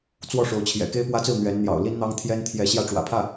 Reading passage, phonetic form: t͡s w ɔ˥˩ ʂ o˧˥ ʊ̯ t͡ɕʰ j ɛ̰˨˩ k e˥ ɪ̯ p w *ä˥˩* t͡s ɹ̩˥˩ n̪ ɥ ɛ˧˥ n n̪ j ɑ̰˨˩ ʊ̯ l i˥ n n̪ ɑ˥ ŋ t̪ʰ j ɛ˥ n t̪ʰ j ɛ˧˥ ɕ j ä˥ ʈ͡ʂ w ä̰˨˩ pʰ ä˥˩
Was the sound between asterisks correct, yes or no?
no